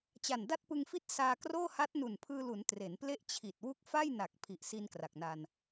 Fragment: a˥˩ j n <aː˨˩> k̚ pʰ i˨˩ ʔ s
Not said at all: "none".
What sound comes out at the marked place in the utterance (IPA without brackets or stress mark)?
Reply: a˨˩